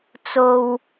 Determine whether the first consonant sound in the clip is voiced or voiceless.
voiceless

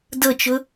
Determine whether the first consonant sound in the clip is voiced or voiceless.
voiced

